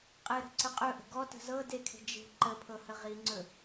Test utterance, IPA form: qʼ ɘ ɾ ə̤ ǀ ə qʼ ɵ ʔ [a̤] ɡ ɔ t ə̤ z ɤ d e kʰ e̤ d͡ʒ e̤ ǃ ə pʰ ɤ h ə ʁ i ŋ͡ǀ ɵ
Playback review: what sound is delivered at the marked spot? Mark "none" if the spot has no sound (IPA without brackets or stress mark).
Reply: ə̤